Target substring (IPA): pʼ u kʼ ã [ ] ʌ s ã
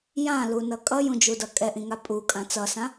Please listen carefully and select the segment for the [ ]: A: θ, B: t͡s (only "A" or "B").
B